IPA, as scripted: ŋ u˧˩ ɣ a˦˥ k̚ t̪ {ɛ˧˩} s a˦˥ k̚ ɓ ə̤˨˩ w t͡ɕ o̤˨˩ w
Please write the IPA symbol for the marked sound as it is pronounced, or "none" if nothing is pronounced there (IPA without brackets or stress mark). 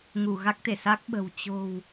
e˧˩